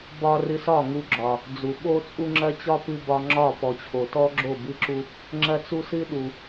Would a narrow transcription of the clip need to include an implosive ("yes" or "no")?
yes